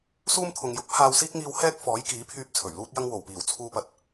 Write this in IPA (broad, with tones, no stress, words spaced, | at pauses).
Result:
suː˥mt̪ʰʊ˨ŋ jʊ˨˥k̚pʰaː˧wsiː˥k̚ ŋiː˧whɛː˥k̚fɔː˨˥jkiː˨˥ pʰyː˧p̚ t͡sʰɵ˨˩ɥluː˥t̚jɐ˥ŋ wo˨˩wpiː˨˩w t͡sʰuː˧pɐ˨t̚